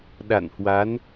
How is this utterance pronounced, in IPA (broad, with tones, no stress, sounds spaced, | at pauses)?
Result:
ɗ a̰˧˨ n h w a˨˦ n